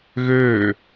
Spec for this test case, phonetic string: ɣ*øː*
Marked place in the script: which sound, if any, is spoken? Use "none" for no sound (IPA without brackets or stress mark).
øː